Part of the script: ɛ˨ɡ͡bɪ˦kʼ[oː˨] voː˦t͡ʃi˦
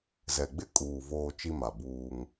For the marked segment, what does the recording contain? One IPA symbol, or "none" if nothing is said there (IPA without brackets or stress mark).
uː˨